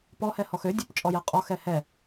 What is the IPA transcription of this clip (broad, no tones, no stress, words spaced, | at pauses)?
pɔhɛ hɔxødʲup t͡ʃʼɔjɛqʼɔxɛ hɛ